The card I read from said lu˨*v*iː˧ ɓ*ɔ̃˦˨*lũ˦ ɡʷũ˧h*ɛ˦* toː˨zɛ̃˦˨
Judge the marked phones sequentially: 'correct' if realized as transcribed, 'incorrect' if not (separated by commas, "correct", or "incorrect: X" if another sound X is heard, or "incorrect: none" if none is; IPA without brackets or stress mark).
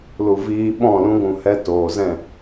correct, correct, correct